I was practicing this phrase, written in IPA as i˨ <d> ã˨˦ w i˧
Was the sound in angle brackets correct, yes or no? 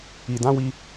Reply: yes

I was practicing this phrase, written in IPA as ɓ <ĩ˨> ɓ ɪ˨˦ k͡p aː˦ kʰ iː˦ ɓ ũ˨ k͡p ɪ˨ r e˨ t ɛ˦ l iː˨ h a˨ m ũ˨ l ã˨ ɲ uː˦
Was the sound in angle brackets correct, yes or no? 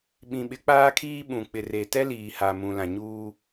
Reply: yes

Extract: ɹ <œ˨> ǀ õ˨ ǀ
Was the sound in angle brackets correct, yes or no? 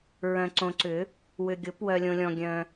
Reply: no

